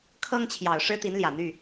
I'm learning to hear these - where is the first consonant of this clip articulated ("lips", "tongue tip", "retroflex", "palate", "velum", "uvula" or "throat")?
velum